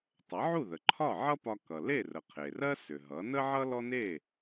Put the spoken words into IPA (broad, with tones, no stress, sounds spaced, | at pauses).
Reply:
tˤ ʌ˩˥ ʕ u˥˩ ð ə˩ ǃʰ ɒ˥˩ ʕ ʌ˥ p ɒ˧ k ʌ˩ l e˥˩ r ə˩ qʰ e˩ r ɜ˥ s ʏ˩ ɦ ʌ˩˥ n ə˥ ʕ ʌ˥ l ɔ˥ n e˥˩